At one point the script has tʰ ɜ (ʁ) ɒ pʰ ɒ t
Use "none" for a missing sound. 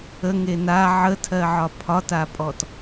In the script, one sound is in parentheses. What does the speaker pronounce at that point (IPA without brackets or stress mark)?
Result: ʕ